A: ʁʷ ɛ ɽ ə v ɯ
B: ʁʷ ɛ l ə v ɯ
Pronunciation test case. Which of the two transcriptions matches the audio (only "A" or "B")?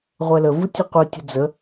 B